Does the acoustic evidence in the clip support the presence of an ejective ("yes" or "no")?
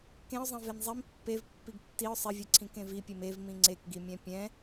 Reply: no